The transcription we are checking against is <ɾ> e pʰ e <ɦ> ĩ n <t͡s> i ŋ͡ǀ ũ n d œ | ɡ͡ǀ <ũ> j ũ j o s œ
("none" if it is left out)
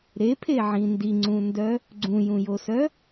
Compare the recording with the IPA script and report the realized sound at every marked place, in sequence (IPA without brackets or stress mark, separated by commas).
ɾ, ʕ, d, ũ